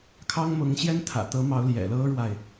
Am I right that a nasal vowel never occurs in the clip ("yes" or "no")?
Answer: yes